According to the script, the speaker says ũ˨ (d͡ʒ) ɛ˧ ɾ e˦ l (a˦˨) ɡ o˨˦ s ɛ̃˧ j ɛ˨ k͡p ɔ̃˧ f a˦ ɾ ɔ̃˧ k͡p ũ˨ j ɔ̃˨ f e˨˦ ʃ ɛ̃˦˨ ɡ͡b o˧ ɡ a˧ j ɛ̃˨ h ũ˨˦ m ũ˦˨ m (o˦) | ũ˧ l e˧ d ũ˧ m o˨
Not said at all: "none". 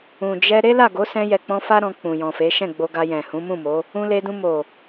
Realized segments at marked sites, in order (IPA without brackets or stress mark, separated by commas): d͡ʒ, a˦˨, o˨˦